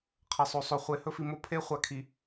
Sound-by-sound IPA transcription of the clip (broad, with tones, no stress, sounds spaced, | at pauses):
qʰ ɐ˨ sˤ o˨ sˤ o˨ χʷ e˨ h ɵ˦ f i˨ m o˦ pʰ e˦ χʷ a˨ kʰ i˨